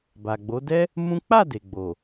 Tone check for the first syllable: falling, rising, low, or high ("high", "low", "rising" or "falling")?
low